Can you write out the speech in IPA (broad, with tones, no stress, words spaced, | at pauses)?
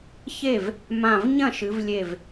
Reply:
çe˥˩v | mã˧˩v ɲɐ̃˥˩ʃɨ˩˧vlʲe˧˩v